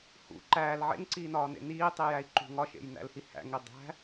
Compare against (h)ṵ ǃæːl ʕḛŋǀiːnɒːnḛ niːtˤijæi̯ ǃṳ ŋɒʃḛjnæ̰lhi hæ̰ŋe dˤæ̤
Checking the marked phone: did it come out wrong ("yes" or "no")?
no